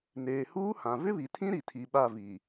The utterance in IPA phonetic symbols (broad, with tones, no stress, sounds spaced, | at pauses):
n eː˨ h uː˦ h ã˨ v ɪ˦ β i˨ tʰ ĩ˦ ɾ i˨ tʰ i˨ ɓ a˦˨ v i˨